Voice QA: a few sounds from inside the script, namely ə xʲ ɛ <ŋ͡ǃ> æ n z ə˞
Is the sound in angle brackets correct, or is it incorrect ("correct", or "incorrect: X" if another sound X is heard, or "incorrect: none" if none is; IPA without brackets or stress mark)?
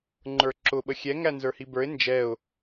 incorrect: ŋ